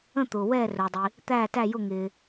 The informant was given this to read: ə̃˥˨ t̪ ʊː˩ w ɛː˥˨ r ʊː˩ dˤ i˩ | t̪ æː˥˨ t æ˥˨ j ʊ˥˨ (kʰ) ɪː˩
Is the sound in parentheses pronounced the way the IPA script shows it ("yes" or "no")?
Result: no